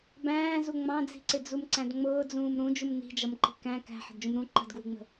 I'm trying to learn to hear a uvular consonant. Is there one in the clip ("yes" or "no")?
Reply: no